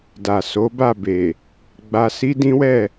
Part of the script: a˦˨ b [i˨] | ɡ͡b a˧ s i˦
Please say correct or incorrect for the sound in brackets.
incorrect